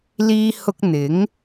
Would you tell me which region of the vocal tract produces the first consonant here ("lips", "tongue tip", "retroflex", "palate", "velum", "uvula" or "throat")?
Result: tongue tip